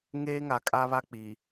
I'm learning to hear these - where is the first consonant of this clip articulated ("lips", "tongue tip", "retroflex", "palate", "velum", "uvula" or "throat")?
velum